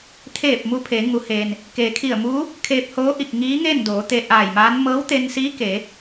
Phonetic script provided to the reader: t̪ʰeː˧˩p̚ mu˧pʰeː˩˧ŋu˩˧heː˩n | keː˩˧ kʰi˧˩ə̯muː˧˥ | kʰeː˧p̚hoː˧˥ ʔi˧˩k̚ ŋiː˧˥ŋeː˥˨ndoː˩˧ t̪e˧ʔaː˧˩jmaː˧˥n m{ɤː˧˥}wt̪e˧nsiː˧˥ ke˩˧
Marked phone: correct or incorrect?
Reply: correct